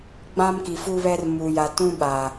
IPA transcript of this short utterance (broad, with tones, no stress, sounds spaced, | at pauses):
ɡ͡b ã˦ m k i˨ f u˦ β ɛ˦ r m u˨ j a˨ t ũ˦ ɓ a˨